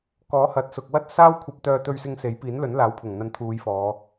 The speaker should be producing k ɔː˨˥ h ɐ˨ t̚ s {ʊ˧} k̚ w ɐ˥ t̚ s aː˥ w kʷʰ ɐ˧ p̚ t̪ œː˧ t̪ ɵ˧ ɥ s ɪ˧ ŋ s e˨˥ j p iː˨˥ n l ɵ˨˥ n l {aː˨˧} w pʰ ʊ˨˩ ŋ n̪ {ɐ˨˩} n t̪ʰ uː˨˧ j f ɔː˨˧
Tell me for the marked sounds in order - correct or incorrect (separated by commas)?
incorrect, incorrect, incorrect